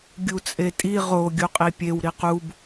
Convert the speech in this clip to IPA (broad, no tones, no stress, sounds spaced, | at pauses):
ɡʲ u t͡sʼ e tʼ i ʁ o ɡʲ u qʼ i pʲ e w ɾ i q u b